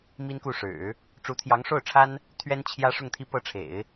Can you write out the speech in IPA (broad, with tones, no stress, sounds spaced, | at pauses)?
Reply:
m i˥ n k u˥˩ ʂ ɻ̩˨˩˦ | ʈ͡ʂ u˧˥ t̪ʰ j ɑ˧˥ ŋ ʂ o˥˩ ʊ̯ ʈ͡ʂʰ a˥ n | t̪ʰ ɥ ɛ˥ n t͡ɕʰ j ä˥ ʂ ʊ˥˧ ŋ t̪ʰ i˥˧ p ɤ˥˩ ʈ͡ʂʰ ḛ˨˩˦ ɪ̯